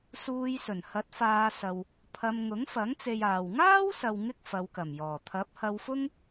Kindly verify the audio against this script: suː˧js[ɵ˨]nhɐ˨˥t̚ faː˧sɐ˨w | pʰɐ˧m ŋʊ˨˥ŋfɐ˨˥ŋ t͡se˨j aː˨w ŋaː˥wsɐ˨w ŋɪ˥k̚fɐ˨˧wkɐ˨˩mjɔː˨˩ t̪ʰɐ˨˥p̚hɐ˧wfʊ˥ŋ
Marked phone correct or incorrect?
incorrect